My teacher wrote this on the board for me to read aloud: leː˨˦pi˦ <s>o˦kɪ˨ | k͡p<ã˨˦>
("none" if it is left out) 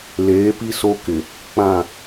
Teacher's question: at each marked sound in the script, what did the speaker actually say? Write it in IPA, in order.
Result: s, ã˦˨

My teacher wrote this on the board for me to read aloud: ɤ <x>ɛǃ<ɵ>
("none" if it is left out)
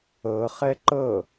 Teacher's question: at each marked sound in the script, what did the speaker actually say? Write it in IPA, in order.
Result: χ, ɤ

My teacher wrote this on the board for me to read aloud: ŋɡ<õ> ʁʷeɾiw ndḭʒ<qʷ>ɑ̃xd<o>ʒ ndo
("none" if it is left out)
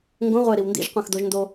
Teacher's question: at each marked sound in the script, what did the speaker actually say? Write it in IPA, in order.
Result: õ, qʷ, o

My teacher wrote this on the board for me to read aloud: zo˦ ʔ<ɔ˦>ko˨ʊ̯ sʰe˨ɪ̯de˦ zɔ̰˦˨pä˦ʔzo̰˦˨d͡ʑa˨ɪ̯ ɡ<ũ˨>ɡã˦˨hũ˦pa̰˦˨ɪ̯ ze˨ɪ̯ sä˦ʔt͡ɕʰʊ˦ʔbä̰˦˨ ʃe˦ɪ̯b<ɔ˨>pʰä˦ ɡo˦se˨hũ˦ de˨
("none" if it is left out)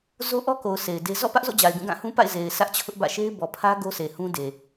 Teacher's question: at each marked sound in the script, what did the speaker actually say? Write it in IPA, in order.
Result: ɔ˦, ũ˦˨, ɔ˨

